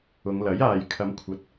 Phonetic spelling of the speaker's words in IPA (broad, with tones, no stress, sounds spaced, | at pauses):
ʊ˨˧ ŋ l ɐ˨˥ j aː˨ j kʰ ɐ˨˧ m kʷʰ ɐ˨˥ t̚